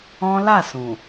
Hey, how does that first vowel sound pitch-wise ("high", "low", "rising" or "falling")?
high